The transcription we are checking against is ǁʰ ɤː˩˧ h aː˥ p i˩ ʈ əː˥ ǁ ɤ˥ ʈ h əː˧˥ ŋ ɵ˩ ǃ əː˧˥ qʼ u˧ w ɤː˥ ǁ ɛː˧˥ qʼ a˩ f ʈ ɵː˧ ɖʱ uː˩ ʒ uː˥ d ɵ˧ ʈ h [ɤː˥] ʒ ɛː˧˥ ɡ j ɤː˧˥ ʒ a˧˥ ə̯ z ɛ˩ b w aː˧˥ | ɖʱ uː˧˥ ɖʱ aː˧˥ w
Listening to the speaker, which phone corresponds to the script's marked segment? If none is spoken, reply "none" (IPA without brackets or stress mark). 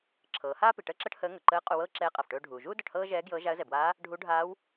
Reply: ɤː˥